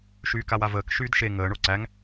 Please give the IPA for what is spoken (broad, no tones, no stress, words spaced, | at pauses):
ʃyːkawavəːk ʃyːdʃe ŋəː ɳoǀæŋ